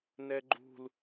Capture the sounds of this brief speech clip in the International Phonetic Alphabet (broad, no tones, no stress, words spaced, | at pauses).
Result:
nɛɡ͡ǃṳl